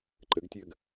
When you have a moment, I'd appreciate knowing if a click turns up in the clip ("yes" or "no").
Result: yes